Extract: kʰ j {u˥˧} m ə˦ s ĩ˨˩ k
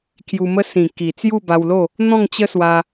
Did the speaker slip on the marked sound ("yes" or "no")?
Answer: yes